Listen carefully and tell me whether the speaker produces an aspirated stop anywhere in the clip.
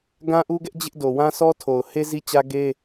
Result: yes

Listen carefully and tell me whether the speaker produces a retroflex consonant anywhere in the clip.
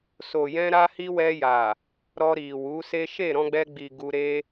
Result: no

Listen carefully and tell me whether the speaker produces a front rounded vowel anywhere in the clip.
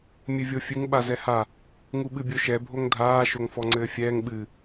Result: no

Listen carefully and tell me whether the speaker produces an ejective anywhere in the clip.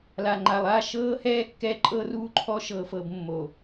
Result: yes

